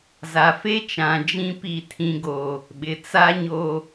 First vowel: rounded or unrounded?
unrounded